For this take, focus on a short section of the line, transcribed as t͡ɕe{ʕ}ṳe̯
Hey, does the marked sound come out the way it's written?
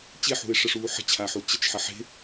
no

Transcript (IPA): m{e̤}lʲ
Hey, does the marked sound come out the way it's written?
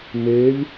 no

